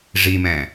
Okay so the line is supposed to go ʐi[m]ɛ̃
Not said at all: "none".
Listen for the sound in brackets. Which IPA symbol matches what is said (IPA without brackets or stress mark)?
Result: m